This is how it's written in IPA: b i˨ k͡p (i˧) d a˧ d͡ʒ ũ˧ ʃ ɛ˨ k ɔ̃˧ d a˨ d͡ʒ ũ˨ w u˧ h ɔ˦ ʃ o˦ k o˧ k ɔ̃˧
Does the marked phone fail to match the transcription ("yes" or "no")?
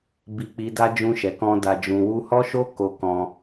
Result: yes